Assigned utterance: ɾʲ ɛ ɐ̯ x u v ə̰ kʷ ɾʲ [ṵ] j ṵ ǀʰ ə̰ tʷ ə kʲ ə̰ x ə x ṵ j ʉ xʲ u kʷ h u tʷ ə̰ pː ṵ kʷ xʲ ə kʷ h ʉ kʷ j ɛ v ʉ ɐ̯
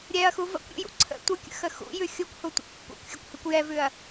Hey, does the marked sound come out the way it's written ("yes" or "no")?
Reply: yes